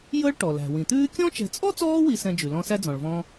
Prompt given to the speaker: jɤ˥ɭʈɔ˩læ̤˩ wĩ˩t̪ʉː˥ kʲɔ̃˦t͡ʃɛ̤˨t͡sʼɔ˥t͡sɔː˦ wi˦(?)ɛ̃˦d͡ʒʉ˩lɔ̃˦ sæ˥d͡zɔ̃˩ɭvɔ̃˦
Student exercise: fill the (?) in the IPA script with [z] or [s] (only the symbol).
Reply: s